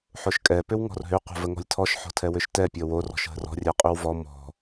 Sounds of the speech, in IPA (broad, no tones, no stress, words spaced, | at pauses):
ħoʃkʼɛ pʏwŋɔ̤rɦʏ qʷə̤vəŋɔ̤lʲtʰɔʃ ħɔ̤tʰɛwʏʃtɛ pʲɔwor ɔ̤ʃɦə̤rɔ̤ rʲɛqʼʏwvɔ mɔ̤